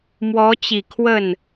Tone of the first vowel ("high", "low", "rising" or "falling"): rising